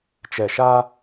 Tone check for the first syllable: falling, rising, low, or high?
low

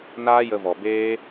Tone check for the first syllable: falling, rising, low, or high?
high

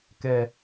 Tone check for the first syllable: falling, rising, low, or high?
low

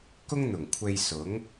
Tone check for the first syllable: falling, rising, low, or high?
high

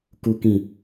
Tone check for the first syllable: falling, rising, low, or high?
low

